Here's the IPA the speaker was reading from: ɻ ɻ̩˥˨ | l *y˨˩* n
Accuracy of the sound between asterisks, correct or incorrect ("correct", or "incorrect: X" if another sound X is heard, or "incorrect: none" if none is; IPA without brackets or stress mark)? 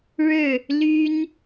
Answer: incorrect: y˦